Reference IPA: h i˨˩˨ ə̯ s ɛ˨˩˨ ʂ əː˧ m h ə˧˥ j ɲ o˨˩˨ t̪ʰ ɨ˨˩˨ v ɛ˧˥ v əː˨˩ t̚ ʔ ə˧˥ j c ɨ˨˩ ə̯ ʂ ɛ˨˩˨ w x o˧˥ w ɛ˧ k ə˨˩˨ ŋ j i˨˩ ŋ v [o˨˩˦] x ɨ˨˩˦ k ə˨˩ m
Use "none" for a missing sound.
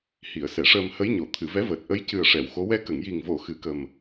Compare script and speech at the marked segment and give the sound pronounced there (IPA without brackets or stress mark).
o˨˩˨